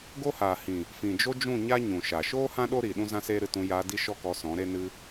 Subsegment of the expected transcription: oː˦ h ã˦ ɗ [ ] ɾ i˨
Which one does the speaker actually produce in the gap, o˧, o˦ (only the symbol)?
o˦